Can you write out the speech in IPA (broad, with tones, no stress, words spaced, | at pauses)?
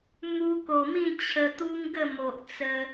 mu˧ko˨˩mĩ˥˧ t͡ɕʰə˧t̪u˦ŋɡə˥˧mo˨ʔ t͡sə˧